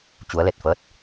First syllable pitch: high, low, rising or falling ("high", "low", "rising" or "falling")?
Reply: rising